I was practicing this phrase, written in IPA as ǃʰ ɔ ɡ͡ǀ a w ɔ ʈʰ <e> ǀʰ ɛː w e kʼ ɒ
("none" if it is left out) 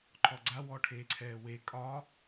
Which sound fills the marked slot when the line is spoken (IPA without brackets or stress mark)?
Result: eː